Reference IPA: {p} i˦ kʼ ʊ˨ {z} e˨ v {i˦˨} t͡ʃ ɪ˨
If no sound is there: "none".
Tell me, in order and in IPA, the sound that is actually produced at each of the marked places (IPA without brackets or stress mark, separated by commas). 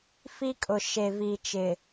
f, ʃ, i˨